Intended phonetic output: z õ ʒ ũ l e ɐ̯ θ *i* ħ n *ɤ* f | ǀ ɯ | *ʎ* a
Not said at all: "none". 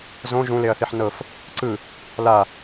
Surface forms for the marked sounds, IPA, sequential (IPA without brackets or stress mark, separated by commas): i, ɤ, l